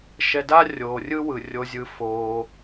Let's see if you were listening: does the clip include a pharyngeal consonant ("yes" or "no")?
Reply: no